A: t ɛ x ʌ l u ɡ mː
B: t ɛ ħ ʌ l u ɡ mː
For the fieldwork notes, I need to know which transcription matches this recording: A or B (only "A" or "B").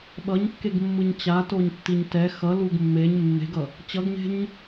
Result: A